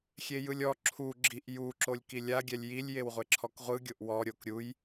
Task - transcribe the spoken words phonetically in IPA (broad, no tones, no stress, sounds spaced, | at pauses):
xʲ e j ɯ lʲ ɔ ǁʰ u ɡ͡ǁ i ʔ j u ǁ o lʲ k i lʲ a ɡʲ ɛ lʲ j i lʲ j e w ʁʷ e ǁʰ ɔ k ʁʷ ɯ ɡʲ o ʔ w ɔ ɾʲ o k ɾʲ u j